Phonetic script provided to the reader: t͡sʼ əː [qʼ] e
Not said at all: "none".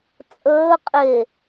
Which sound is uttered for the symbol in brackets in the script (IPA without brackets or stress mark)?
qʼ